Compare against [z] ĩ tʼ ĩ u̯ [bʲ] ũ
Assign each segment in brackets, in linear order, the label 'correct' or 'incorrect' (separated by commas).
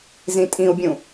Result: correct, correct